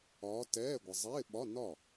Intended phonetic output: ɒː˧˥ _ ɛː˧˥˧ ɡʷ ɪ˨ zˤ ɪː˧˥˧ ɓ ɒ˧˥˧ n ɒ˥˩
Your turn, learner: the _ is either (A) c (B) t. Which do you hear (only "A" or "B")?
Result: B